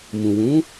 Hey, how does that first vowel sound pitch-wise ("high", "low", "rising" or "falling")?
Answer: low